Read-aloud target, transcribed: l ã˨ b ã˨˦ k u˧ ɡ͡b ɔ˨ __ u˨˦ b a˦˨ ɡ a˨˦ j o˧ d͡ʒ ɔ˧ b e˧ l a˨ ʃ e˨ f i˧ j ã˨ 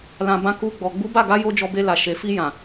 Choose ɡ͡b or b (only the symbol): ɡ͡b